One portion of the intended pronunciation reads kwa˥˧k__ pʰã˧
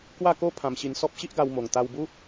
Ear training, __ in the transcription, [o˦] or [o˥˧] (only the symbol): o˦